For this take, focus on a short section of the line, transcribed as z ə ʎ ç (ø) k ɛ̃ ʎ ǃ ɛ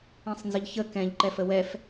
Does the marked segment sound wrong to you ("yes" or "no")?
yes